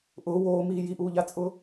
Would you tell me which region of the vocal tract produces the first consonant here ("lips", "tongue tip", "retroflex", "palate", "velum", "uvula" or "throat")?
throat